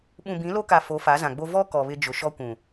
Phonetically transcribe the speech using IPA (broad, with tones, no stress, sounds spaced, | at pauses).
ɓ ũ˨ b ĩ˨˦ l o˦ k a˨ f o˨˦ f a˨˦ z ã˨ ɡ͡b o˦ v ɔ˦ k ɔ˨ β ɪ˦ d͡ʒ ʊ˨ ʃ ɔ˦ kʷ ũ˨